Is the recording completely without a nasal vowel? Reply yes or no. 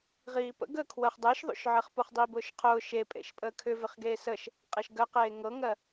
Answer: yes